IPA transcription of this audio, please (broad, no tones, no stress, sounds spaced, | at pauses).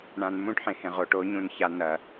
ɳ ã n m ũ ʈ ħ ẽ h ẽ ʁ o ʈ o ɲ ũ n ç a n ɐ